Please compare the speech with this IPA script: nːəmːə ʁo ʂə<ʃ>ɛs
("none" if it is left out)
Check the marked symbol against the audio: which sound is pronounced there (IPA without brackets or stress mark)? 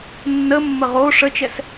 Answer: t͡ʃ